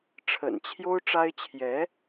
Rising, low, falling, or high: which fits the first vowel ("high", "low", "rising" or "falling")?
low